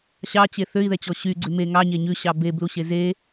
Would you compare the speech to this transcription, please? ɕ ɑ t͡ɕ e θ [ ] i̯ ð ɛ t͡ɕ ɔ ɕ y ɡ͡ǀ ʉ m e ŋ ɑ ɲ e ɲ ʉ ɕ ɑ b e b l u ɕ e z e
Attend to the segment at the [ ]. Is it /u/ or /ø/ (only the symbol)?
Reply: ø